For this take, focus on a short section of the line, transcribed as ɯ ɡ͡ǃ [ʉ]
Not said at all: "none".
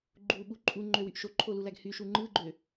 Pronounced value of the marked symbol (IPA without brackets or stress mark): ø